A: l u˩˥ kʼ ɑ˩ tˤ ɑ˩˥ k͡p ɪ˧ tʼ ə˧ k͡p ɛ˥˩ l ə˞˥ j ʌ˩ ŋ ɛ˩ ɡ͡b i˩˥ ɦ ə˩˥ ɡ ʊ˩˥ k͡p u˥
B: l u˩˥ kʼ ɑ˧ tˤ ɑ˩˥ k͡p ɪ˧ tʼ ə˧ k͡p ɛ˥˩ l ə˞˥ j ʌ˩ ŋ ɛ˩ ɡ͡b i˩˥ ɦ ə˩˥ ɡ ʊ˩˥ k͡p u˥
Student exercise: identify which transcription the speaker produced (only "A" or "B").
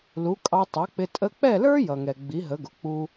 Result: B